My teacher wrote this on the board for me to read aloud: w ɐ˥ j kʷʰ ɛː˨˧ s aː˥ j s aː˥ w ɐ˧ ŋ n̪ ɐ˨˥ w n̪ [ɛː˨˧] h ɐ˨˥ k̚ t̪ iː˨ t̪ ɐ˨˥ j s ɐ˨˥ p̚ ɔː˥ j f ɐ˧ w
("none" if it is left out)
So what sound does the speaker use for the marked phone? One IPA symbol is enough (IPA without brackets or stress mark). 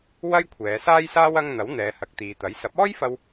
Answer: ɛː˨˧